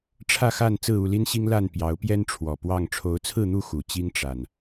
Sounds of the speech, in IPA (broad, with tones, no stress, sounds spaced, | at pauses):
ʈ͡ʂʰ ä˥˨ x a˥˨ n t͡s ɹ̩˥˨ u˥˨ l i˦ n ɕ i˦ ŋ l a˥˨ n p j ɑ˨˦ ʊ̯ p j ɛ˦ n ʈ͡ʂʰ w ɔ˨˩ p w ɑ˥˨ ŋ ʈ͡ʂʰ o˨˦ ʊ̯ t͡sʰ ɹ̩˥˨ n̪ u˥˨ x u˨˩ t͡ɕ i˦ ŋ ʈ͡ʂ a˨˩ n